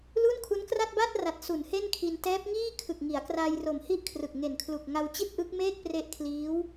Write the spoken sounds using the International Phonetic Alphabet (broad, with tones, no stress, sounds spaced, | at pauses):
l u˥˩ n kʰ u˦˥ n k r a˥˩ t̚ b a˥˩ t̚ r a˨˩ t̚ s u˩˦ n h e˥˩ n kʰ i˧ n t ɛː˦˥ p̚ ŋ iː˥˩ kʰ ɯ˨˩ k̚ ŋ i˩˦ a̯ k r a˧ j r o˨˩ m h i˥˩ ʔ kʰ r ɯ˨˩ k̚ ŋ e˨˩ n kʰ l u˨˩ k̚ ŋ a˧ w t͡ɕ i˥˩ t̚ ʔ ɯ˦˥ k̚ m eː˥˩ k̚ p r e˦˥ ʔ kʰ l iː˦˥ w